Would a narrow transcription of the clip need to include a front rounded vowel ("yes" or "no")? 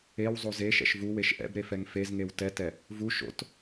no